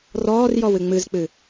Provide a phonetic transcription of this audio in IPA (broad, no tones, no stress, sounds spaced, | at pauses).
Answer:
r ɔː r j ɔ w ɨ ŋ͡m ɨ z k͡p ɨ